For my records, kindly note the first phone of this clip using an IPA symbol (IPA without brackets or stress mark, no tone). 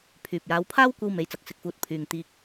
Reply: pʰ